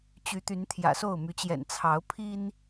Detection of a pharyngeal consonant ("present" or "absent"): absent